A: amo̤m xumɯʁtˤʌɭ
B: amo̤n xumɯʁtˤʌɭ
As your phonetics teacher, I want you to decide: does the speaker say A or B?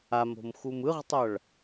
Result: A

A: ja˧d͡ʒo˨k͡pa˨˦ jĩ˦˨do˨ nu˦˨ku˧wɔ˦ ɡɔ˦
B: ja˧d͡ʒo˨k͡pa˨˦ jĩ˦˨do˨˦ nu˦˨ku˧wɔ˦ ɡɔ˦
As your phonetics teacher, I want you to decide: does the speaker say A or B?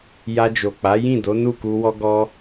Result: B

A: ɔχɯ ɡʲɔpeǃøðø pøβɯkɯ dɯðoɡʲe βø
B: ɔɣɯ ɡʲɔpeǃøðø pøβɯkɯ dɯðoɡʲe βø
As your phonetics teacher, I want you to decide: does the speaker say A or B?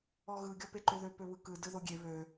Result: B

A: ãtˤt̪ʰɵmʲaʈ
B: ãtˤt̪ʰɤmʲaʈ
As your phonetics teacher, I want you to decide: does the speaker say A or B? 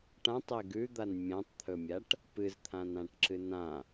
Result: A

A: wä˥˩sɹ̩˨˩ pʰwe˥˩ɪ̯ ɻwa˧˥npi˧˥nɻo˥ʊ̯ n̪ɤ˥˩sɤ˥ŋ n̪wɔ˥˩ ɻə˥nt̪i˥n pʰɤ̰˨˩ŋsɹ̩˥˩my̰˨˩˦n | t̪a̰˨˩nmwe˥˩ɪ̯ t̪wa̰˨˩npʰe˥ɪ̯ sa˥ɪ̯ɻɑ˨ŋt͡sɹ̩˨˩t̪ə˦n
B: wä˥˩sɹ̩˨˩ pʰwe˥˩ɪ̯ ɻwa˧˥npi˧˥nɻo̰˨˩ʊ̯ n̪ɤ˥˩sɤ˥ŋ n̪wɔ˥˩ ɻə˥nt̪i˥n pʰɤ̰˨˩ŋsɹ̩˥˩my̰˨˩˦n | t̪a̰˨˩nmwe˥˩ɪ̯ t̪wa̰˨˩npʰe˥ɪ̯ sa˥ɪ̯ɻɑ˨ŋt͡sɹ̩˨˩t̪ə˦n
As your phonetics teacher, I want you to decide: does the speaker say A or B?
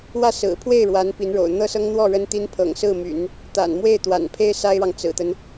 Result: B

